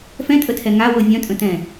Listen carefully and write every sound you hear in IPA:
f ɛ̃ tʼ ə tʰ ɛ ŋ a w ɤ vʲ œ̃ tʼ ə̃ t ɛ̃

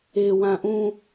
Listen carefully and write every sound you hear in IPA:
e w ã ʔ ũ

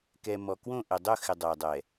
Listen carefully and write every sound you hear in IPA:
k ɛ˨ m ɔ˨ k w õ˦˨ ʔ ɪ˨ dˤ ʊ˦˨ x ɪ˨ dˤ ɛ˨ dˤ ɛ˨

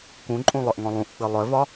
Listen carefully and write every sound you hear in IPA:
k ũ ǃʼ ũ lˠ œ ʔ ŋ ɔ̃ lˠ ũ ʔ k͡p ɨ lˠ œ v ɒ

